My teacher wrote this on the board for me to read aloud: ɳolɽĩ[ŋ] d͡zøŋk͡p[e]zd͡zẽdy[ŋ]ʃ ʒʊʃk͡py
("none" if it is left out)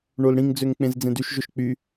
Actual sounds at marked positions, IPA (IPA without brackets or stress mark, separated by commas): ŋ, ẽ, none